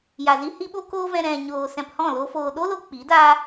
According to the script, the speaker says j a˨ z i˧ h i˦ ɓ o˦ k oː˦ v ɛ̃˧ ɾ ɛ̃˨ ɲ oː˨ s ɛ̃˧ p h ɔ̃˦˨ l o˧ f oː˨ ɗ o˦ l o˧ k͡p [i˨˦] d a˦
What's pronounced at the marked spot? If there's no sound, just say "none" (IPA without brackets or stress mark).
i˨˦